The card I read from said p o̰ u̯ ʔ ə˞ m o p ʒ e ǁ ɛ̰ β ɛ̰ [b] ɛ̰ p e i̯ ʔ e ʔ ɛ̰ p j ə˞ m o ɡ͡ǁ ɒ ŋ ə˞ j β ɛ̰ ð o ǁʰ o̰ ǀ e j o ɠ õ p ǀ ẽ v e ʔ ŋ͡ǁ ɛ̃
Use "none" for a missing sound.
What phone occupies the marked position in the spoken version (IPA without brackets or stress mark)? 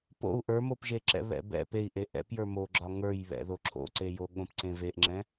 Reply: b